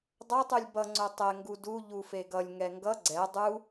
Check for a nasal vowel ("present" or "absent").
absent